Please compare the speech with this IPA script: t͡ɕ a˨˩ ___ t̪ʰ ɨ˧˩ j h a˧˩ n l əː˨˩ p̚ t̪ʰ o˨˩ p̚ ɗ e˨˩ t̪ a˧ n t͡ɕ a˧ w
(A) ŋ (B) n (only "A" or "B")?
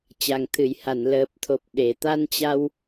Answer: A